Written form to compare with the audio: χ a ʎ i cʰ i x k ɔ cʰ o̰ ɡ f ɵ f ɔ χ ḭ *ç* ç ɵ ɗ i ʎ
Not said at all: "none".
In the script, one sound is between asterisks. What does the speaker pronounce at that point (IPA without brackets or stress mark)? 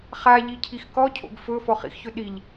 x